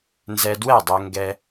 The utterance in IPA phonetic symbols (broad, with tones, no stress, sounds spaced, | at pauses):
n z ɛ˧ d w ɛ˥˨ dˤ ɛ˧ ŋ ɡ ɛ˧